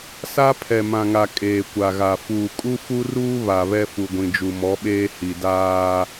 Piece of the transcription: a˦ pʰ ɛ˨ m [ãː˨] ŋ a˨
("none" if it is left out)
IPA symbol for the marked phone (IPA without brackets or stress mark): ã˨